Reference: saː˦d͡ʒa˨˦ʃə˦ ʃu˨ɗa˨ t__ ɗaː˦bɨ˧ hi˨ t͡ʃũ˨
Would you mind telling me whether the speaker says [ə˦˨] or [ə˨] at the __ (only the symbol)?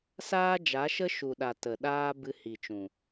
ə˨